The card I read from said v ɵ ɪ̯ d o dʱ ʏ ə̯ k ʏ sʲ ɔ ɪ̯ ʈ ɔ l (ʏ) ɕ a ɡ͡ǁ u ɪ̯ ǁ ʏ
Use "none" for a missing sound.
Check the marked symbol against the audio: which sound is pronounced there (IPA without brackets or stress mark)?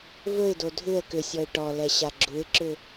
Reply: ɛ